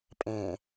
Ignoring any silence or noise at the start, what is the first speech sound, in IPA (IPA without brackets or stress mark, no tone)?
pʼ